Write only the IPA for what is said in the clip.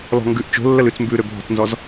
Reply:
l ɔ̤ ŋ ɡ ʉ ʔ t͡ʃ o̤ lː ə l ʉ t͡s m b ʉ ɾ ø bʱ ɔ̤ t͡s n z ɔ z

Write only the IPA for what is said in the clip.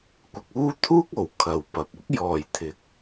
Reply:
kʷ ɪ˨ k̚ uː˥ t̪ʰ uː˥ k̚ o˨˩ w kʰ ɐ˨ w p ɐ˨ p̚ ʊ˥ k̚ j ɔː˨˩ j t̪ʰ ɪ˨˥ k̚

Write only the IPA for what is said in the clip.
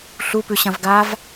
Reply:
ɬ u p ʉ ɕ ɐ̃ v ɡ a v

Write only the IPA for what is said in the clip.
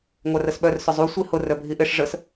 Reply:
ŋʷ a r ə s ɓ œ r s ʊ zˤ u sʷ i h ʊ r œ bʱ i ʔ ɪ ʂ ʐ ə s

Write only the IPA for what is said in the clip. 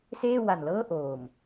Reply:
s eː˥˩ w a˨˩ n l ɤː˥˩ ʔ oː˨˩ m

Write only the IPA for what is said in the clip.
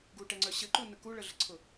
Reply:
ɡ u ʈ ɛ ŋ͡ǀ œ ɕ ɘ ǃ u n ə k u ɭ ə ɮ ɘ ǀʰ ʊ

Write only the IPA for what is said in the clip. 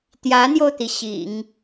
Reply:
t̪ j ä˧˥ n̪ j o˧ ʊ̯ t̪ i˩ ɕ ḭ˨˩˦ ŋ

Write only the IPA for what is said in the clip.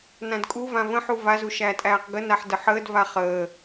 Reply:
n ã d kʼ u v ã v ə̃ ħ u v a z u ʃ æː tʼ æː q ɡ ə n a ħ d ə ħ əː d v a χ əː

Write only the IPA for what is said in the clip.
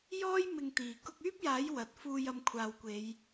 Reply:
j ɔː˥ j m ɪ˧ ŋ t̪ iː˨˩ k ʊ˧ k̚ yː˥ p̚ j aː˨˥ j w ɐ˨ t̚ f uː˧ j ɐ˧ m kʷʰ aː˨ w kʷ e˨˧ j

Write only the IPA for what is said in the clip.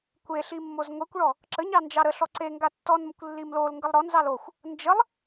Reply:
kʷ e ɬ i mː o z ŋʷ e kʷ ɭ ɔ | ǁ ə ɲ ɑ n d͡ʒ ɑ ɾ ə ɬ ɔ ǀ e ŋ ɡ a tː ɔ n m ə kʷ lː i m l o l ŋ ɡ ə lˠ ɾ ɔ n z ɑ l o xʷ | n d͡ʒ ə lˠ

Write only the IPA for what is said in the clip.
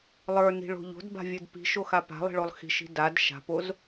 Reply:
lˠ ə˞ n i̤ ɭ o̤ ʎ o̤ d b a̤ vʲ ə˞ d p i̤ ʃ o x a p a̤ lˠ i̤ ɭ o lˠ x i̤ ʃ i̤ d a d ʃ a̤ p o z

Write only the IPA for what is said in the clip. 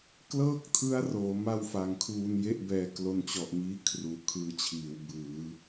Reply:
k l ɤː˥˩ k̚ tʰ ɯ˦˥ a̯ r oː˩˦ m a˥˩ w f a˨˩ ŋ kʰ uː˧ n j e˥˩ ʔ b ɛː˧ k l o˧ n t͡ɕ ɔ˨˩ ʔ m iː˦˥ kʰ r uː˨˩ kʰ ɯː˦˥ t͡ɕʰ iː˩˦ w b ɯː˩˦

